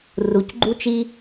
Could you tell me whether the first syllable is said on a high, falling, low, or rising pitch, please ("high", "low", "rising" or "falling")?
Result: low